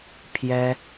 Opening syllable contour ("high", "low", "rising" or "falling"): high